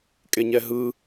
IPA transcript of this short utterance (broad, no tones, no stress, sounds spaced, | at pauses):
kʼ e ɲ ɛ ɦ ɯ